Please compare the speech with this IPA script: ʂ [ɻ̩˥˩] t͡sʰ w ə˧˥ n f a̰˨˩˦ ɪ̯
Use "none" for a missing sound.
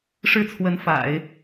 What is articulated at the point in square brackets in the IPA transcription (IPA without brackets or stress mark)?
ɻ̩˥˩